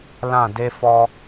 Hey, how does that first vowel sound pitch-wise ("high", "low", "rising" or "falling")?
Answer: falling